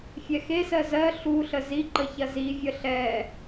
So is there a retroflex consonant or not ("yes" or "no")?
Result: no